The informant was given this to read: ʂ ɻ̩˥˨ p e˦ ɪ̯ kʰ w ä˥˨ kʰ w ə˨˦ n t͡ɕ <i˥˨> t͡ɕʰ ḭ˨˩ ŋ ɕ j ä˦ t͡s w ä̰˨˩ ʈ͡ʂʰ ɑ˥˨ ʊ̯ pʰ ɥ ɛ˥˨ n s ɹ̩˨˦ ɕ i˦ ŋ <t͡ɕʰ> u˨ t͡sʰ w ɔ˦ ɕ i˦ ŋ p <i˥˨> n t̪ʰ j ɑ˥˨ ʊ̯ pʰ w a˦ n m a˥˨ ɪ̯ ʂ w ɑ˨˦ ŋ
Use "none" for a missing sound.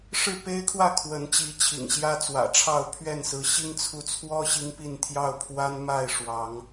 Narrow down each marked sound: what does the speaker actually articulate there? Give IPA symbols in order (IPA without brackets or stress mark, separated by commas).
i˨˦, t͡sʰ, i˥˨